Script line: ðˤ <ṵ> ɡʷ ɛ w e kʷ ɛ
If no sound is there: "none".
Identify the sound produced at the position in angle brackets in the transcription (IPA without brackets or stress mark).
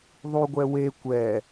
u